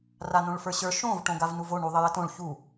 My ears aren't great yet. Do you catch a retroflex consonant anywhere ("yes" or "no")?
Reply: yes